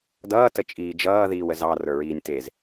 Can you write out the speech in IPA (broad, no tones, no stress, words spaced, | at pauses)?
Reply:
dʌː tət͡ʃʼiːd͡ʒʌː ðiːwəzɑ rə˞ɹiːnʲtez